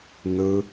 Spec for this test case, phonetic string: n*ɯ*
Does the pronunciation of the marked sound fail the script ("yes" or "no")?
no